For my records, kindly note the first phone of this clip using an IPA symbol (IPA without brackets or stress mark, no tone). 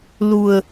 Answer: l